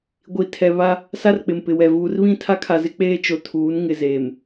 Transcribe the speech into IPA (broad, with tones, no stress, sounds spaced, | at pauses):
ɡʷ i˨ tʰ ɛ˨ β a˦ | s a˦ r k͡p ɪ˨ m p ɪ˨ w ɛ˨ v uː˨ r β ĩ˦˨ tʰ a˦ kʰ a˨ z ɪ˦ k͡p eː˦ t͡ʃ o˨ tʰ uː˨˦ n ŋ ɪ˨ z eː˨ m